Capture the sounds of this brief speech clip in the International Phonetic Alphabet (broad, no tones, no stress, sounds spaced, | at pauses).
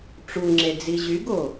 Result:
ʈ͡ʂ u ŋ͡ǁ e d͡z i ʑ y ɡ o